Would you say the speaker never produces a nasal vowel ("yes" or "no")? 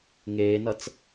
yes